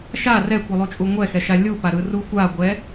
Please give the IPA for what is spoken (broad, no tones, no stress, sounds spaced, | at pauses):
ʃ a r ɛ kʷ ɯ lˠ u t͡ʃʼ u ŋʷ ɛ x ɛ ʃ a lʲ u p a ɾ ɯ r u xʷ a ɡʷ ɛ